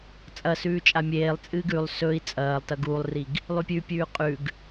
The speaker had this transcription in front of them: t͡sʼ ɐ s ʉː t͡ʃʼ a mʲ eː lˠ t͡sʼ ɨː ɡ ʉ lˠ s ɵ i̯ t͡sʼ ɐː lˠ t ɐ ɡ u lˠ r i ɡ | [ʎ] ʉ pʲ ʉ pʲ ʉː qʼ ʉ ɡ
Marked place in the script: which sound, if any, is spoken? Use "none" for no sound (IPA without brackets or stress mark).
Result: lˠ